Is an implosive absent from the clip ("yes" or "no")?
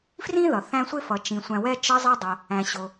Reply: yes